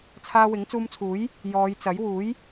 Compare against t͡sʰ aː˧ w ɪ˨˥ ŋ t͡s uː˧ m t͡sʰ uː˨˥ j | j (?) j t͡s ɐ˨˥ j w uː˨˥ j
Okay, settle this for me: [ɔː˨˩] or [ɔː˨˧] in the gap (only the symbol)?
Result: ɔː˨˧